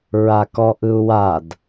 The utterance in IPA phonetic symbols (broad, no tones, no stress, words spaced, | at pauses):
ɹakɔʔɯu̯wad